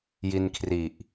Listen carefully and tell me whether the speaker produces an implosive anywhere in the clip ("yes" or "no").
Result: no